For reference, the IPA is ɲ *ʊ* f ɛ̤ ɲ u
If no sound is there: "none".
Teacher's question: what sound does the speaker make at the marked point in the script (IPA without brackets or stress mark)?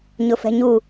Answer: ʊ